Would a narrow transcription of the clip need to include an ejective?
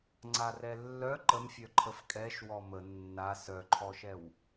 yes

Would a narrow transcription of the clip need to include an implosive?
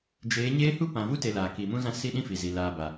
yes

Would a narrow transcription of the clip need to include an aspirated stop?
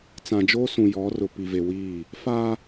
no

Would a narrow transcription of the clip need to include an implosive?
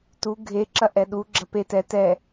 yes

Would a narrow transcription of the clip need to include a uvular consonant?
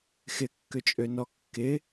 no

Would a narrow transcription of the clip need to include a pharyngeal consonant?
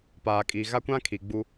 no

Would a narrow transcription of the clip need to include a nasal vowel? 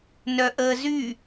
no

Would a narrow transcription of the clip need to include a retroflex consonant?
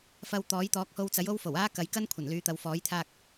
no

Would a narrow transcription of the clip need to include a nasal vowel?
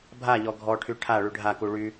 no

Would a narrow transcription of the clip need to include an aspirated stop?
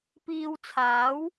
yes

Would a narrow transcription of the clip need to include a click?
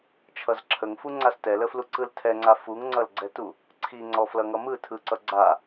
yes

